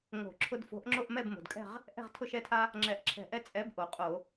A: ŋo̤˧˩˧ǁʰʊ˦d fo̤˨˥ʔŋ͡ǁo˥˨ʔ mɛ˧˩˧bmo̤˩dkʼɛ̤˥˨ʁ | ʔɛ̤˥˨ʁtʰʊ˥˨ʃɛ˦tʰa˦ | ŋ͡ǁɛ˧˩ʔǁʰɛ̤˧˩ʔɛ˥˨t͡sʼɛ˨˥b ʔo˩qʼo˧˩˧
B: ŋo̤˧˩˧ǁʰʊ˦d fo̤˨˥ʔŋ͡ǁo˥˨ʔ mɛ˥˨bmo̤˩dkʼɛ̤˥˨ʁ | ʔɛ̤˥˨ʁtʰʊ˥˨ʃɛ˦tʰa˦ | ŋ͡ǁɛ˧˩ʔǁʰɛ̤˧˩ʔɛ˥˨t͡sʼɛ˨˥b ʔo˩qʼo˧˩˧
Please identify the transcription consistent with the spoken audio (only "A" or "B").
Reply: B